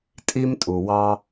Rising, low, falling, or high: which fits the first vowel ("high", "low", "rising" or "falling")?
high